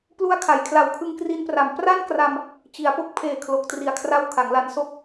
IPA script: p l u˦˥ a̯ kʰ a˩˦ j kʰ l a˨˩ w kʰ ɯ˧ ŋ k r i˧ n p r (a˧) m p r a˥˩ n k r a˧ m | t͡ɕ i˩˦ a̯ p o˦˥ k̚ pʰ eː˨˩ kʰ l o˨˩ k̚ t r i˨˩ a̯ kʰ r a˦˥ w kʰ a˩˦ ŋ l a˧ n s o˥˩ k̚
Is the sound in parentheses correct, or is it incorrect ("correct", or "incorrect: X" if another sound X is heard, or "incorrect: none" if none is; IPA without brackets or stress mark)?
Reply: incorrect: a˨˩